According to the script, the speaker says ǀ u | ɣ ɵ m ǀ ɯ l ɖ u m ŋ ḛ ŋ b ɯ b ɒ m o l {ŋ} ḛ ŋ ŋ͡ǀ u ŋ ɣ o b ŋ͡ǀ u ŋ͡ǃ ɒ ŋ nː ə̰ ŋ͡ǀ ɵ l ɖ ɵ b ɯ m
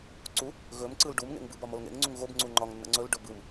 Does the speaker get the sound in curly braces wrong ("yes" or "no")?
no